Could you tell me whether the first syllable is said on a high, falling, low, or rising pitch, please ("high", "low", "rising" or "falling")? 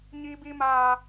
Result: high